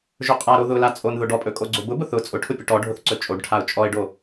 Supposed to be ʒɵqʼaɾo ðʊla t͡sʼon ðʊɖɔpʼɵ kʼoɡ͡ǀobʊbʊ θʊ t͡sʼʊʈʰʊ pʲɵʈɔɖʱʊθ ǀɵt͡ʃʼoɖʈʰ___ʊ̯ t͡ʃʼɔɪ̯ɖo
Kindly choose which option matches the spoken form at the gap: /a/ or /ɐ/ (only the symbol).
a